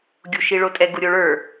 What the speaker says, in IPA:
ɡʲ u ʃ i ɭ o tʼ ɛ ɡ u ɾʲ o ɭ ə˞

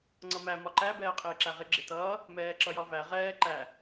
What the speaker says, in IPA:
ŋ͡ǀ ʌ m æ m ɒ ǃ æ b ɛː qʼ ɪː ǁ æ ʁ ɪ ɡ͡ǁ ɪ t ʌː | m ɛː ǁ ʌ j ɒ v æ ʁ ɛː ǃ æ

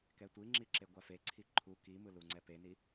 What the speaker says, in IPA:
k ɛ tʷ i ŋ͡ǁ i ǁ e ɡʷ a f e ǀʰ i ǃʰ u k i m ɯ l u ŋ͡ǀ ɛ p e n i

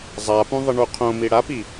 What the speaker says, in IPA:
zˤ a p ũ ðˤ ə ɳ u qʰ õ m i ɽ a p i

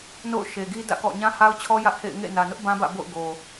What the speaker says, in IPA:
n o̰˦˨ ʊ̯ ʃ e˨ ɡ i˦ d ä̰˦˨ k ɔ̰˦˨ ɲ ã˦ h a˦ ʊ̯ t͡ɕʰ ɔ˦ j ä˦ ʔ h ḛ˦˨ ɪ̯ ŋ ḛ˦˨ n ä˨ n ʊ˦ ʔ b ã˦ b ä̰˦˨ b o̰˦˨ ʊ̯ ɡ o˨

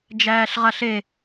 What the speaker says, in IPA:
d͡ʒ æː ɬ ʁ a ɬ e

